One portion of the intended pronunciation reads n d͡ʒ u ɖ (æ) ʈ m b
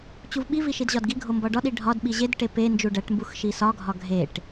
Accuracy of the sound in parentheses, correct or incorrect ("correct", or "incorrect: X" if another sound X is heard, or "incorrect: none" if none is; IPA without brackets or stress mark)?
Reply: correct